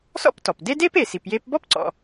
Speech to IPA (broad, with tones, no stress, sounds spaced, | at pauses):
s ɔ̰˥ p t ɔ˩ p d e˥ d e˥ p e˩ s i˩ p j e˧ p b ɔ˥ p ǀ ɔ̰˩